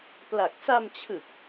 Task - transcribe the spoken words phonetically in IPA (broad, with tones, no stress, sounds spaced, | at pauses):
p l a˨˩ k̚ s a˧ m t͡ɕʰ ɯ˨˩ k̚